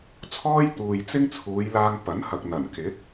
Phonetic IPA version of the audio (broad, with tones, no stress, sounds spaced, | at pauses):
t͡sʰ ɔː˥ j t̪ uː˨ j t͡s ɪ˥ ŋ t͡sʰ uː˨˧ j l aː˧ ŋ p ɐ˨˥ n h ɐ˨ k̚ n̪ ɐ˨˩ n k ɪ˨˥ k̚